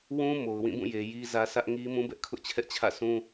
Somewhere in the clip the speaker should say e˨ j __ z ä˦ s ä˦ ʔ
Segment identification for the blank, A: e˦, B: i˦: B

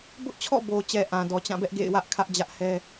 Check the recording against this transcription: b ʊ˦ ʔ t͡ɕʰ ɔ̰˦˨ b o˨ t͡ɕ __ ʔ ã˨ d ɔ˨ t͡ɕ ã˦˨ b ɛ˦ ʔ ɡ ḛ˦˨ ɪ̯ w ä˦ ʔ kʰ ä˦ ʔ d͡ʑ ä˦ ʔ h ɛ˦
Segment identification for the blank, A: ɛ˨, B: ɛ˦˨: A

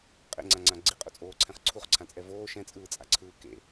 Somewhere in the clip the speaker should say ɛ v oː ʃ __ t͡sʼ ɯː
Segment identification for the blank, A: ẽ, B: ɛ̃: B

